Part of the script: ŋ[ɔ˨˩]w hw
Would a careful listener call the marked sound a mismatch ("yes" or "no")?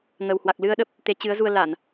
yes